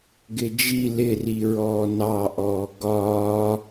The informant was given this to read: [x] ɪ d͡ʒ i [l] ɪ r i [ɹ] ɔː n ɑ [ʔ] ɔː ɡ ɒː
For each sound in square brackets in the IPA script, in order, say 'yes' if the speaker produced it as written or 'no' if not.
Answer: no, yes, yes, yes

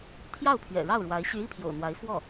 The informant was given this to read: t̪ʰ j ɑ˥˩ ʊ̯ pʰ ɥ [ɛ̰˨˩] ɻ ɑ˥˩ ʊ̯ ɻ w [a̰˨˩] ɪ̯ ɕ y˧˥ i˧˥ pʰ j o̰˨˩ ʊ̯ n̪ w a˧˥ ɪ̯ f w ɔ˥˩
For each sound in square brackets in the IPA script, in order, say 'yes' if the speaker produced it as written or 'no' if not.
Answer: yes, no

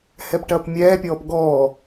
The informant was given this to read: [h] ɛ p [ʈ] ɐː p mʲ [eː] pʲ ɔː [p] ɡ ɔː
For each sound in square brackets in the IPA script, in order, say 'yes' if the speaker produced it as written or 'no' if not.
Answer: yes, yes, no, yes

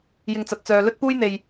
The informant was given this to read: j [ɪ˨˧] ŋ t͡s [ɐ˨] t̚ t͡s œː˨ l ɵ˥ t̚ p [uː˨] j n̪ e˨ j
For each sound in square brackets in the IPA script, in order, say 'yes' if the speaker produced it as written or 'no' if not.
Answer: no, yes, no

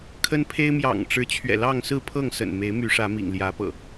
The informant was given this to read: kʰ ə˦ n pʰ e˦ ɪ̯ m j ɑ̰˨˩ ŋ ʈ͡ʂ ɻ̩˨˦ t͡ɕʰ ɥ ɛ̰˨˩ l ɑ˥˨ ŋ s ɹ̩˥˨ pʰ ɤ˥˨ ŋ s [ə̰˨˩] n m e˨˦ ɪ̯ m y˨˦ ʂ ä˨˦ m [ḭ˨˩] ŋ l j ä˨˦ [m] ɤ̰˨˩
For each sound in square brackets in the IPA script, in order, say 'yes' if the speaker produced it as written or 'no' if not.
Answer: yes, yes, no

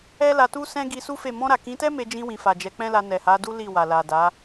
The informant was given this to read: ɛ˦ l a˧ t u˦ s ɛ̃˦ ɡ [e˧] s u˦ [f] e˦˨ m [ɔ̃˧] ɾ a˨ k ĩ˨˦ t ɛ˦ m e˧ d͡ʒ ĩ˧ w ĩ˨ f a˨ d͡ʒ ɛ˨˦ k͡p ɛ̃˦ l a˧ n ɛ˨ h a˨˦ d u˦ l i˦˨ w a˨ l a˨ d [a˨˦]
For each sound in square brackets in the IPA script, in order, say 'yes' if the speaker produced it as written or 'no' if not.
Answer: no, yes, yes, yes

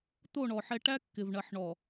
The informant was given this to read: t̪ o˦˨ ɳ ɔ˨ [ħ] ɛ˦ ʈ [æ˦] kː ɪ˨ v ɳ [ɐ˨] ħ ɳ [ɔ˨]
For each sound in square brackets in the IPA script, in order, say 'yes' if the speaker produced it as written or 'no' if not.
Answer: yes, yes, yes, yes

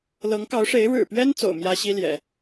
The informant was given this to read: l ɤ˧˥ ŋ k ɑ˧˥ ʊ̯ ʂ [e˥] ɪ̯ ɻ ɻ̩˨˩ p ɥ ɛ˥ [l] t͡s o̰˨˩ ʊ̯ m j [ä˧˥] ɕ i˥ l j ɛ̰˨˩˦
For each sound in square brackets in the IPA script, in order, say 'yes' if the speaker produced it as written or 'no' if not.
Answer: no, no, no

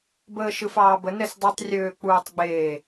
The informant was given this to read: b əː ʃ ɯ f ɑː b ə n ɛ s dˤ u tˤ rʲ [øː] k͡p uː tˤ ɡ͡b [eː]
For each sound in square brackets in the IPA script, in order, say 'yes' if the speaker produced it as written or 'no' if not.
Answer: yes, yes

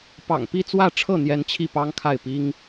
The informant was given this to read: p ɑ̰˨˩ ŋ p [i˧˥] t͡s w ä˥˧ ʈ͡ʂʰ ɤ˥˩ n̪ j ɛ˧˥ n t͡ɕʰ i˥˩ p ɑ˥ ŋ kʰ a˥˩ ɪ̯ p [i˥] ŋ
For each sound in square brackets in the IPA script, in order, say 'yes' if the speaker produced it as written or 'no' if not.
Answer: no, yes

